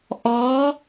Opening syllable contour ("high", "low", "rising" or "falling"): rising